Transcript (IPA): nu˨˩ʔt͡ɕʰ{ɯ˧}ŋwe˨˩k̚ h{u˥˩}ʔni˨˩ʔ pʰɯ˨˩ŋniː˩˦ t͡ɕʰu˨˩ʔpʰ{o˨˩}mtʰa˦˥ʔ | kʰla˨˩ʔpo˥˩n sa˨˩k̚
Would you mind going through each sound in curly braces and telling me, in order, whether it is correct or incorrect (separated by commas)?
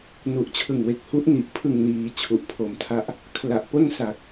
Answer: incorrect, incorrect, correct